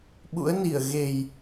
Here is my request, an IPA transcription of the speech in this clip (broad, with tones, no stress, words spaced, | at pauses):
ɓṵ˧˥ə̯ni˧˩ə̯ ɣe˨˩j